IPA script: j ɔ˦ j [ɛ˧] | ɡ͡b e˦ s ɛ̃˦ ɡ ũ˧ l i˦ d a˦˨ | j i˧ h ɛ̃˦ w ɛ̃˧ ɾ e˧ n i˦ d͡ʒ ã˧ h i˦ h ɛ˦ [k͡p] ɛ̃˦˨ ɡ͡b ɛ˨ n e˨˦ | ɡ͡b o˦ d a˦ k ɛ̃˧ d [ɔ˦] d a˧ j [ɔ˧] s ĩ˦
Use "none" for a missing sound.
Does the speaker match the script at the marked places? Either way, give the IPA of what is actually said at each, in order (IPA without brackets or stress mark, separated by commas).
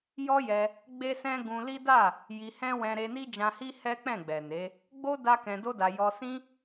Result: ɛ˧, k͡p, o˦, ɔ˧